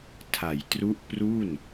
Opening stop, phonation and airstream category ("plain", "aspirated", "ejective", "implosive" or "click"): aspirated